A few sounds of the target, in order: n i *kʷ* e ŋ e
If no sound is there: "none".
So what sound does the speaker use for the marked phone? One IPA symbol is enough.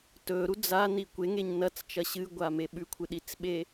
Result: kʷ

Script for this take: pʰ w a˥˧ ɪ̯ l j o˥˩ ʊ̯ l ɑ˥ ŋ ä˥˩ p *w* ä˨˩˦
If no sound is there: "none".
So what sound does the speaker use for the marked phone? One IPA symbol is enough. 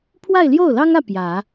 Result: j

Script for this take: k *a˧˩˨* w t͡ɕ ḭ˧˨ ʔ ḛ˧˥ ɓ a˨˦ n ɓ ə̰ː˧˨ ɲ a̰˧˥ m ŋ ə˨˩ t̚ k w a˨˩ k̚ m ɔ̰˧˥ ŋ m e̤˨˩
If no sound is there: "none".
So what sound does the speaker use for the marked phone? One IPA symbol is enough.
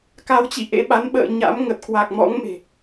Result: a˨˦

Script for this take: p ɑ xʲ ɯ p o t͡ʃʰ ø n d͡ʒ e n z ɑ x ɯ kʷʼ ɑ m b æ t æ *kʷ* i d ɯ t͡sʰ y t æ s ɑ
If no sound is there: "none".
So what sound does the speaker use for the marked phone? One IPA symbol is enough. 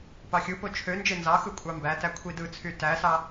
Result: kʷʰ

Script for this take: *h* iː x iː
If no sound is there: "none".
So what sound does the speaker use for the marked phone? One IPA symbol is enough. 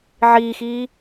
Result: ʕ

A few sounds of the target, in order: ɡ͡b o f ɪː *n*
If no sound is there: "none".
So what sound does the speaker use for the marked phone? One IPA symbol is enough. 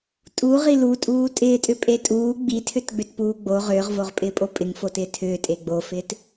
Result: t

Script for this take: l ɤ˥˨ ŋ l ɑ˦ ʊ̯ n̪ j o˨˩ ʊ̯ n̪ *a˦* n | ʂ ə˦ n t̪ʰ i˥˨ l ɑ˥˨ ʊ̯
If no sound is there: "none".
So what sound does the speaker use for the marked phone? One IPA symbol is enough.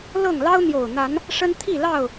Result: a˨˦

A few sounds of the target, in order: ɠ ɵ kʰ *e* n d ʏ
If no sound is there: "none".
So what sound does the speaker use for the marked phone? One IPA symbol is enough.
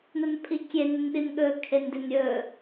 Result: e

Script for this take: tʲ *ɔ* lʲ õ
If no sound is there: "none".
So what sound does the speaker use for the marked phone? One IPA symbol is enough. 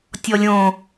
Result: ɔ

